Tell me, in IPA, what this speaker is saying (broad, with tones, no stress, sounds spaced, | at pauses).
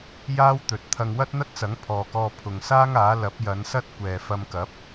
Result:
j aː˥ w t̪ ɵ˨ t̚ t̪ʰ ɐ˧ ŋ w ɐ˥ t̚ n̪ ɐ˥ t̚ t͡s ɐ˨˥ ŋ pʰ ɔː˨ k ɔː˧ pʰ ʊ˨ ŋ s aː˥ ŋ aː˨˥ l ɐ˨˥ p̚ j ɐ˨˧ n s ɐ˥ t̚ kʷ ɛː˨ f ɐ˧ m k ɐ˨˥ p̚